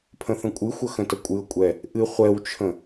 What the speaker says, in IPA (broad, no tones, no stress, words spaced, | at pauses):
pʰə̃θə̃kʷʼɨxʷə xə̃təkʷʼɨʊ̯kʷʼɛ | ʔɨ χʷɛwt͡ʃʰə̃